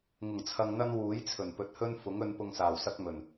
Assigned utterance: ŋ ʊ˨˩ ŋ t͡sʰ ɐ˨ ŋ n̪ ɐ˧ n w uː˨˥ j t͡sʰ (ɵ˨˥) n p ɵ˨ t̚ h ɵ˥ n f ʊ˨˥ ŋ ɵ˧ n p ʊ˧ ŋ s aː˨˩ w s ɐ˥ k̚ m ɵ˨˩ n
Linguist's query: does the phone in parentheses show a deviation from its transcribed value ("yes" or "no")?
yes